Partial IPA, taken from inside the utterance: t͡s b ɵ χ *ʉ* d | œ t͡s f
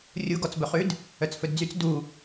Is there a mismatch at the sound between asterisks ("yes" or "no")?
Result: no